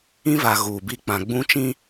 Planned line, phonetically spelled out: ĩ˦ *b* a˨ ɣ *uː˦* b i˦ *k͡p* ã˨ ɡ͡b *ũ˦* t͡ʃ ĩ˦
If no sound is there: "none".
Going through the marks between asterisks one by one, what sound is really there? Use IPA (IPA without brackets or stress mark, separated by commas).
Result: v, uː˨, k͡p, ũ˦